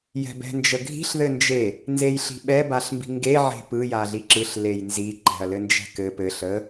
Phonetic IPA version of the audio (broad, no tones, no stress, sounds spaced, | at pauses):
j ɛ̤ b ɛ̤ n d͡ʒ ə ɡʱ i̤ ɬ ð ɘ n d͡ʒ e | n z e j ɬ i̤ ɓ ɛ b a ɬ m b i̤ ŋ ɡ e ʕ e̤ p ɯ j a ɮ i ǁ ɯ ɬ l e j n z i ǃ ɛ̤ ɐ̯ l ɘ n d͡ʒ ɛ̤ k ɘ p ɘ ɬ ə